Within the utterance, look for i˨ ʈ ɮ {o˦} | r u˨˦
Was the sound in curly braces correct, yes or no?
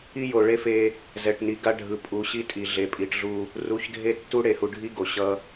no